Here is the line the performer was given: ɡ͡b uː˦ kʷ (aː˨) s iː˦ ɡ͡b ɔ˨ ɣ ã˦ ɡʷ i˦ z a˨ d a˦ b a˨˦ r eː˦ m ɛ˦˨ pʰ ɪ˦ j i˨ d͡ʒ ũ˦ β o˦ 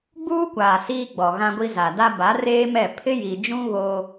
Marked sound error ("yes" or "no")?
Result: no